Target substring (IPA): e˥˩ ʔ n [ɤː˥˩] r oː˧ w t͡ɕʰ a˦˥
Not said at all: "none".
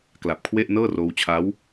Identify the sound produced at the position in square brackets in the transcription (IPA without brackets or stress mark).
ɤː˥˩